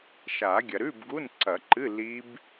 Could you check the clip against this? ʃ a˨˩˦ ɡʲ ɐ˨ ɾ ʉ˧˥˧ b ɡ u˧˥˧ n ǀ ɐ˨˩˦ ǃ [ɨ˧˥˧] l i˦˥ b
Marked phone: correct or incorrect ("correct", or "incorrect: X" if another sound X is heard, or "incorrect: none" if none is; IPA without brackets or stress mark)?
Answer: correct